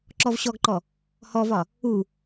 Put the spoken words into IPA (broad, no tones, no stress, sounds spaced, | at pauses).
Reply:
ǁ ɔ v ɕ ɔ ɡ ǃ ɔ | h ɔ v ɒ | u